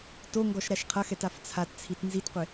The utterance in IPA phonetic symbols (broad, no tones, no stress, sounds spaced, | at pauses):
t o ŋ ɡ ɔ ʃ ɾ a ʃ qʰ ɐ x ɛ t a f t͡sʰ a t t͡sʰ i t n z i t qʷ e